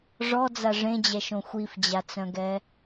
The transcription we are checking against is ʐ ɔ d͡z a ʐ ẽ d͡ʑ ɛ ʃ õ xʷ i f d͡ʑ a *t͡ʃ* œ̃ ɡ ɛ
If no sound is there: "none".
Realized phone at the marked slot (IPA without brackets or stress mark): t͡s